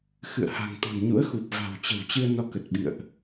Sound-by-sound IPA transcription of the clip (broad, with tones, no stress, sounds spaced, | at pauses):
x ɨ̰˧˨ ə̯ h a̤˨˩ ŋ t̪ ɔ̤˨˩ n ɲ ṵ˧˥ ə̯ x u˨˩ p̚ v a̤˨˩ w t͡ɕ ə̤˨˩ w t͡ɕ ɨ˧ ə̯ n ɔ˧ k ə˨˩ t̚ ɓ ḭ˧˨ ə̯ ʔ